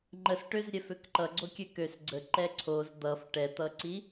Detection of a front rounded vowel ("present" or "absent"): present